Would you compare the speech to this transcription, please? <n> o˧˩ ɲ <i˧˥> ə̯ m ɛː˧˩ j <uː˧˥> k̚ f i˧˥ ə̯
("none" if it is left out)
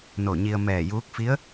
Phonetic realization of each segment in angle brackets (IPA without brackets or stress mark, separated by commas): n, i˧, uː˧˥